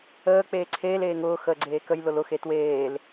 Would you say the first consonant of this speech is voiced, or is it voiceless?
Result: voiceless